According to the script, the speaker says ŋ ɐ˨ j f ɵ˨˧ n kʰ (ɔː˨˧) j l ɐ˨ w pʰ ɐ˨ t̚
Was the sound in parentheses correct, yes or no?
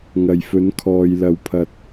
no